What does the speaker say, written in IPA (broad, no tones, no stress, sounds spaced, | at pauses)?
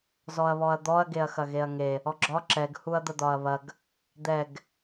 z ɔ ɐ̯ β ɔ ɐ̯ d̪ ɔ ɐ̯ ɡ e ɐ̯ x ɐ ɣ e ɐ̯ ŋ e | ɔ ɡ͡ǁ ɒ ǁ ɛ ɡ h u ɐ̯ d̪ ə d̪ ɒ ɐ̯ β ɐ ɡ | d̪ ɛ ɡ